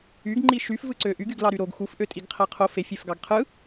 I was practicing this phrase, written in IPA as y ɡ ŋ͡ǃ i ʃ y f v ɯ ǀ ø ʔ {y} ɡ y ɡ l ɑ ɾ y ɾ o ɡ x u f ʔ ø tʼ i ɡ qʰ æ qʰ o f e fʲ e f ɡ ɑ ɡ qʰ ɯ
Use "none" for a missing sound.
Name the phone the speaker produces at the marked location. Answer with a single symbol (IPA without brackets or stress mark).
y